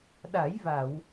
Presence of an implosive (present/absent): present